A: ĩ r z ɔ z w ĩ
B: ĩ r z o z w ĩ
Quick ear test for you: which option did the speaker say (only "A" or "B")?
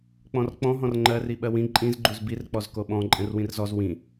A